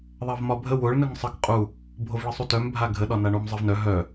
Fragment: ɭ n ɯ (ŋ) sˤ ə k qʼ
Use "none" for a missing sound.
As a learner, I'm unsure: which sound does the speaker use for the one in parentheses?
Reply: ŋ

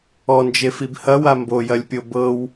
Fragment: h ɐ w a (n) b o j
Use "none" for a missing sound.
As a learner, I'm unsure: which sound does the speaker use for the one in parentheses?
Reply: m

